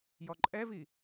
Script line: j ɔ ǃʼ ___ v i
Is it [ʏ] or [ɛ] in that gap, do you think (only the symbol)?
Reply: ɛ